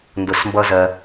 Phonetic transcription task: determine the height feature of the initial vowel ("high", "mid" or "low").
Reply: high